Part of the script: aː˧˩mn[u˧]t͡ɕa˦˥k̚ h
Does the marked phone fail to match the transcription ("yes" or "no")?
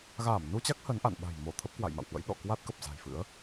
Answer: no